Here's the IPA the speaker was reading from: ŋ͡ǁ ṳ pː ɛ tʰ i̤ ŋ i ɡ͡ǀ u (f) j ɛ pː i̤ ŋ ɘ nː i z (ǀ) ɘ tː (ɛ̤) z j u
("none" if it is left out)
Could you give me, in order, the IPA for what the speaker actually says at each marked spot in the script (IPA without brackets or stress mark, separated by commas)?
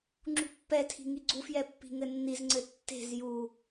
f, ŋ͡ǀ, e̤